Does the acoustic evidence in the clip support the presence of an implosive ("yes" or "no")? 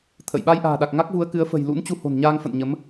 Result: yes